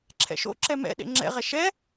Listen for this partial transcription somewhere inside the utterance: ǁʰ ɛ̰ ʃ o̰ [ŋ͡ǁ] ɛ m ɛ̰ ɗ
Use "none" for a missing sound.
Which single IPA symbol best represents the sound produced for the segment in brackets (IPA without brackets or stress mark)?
ǁ